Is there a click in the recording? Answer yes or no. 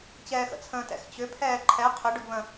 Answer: yes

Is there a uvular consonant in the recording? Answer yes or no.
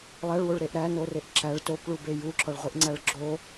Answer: yes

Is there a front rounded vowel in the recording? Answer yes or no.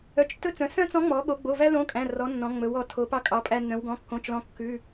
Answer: yes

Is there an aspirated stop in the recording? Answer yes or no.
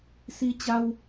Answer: no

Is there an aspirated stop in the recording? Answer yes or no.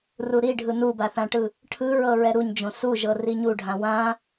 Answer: yes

